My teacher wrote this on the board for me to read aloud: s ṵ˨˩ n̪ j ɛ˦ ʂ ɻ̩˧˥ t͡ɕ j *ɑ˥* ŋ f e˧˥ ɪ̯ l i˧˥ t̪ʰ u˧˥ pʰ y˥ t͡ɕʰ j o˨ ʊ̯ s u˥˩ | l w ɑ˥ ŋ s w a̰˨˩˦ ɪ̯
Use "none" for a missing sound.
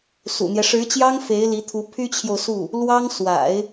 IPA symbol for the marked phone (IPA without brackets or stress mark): ɑ˥